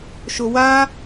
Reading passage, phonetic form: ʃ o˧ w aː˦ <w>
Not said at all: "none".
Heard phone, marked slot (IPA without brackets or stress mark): none